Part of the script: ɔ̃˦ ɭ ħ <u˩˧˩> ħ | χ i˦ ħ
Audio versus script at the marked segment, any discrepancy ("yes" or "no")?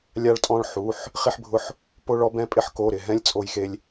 no